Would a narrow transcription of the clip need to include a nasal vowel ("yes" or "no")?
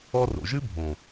yes